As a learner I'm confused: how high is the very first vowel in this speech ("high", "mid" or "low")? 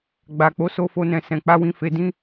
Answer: low